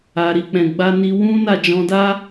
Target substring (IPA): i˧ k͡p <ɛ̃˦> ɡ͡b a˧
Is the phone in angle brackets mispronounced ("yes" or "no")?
yes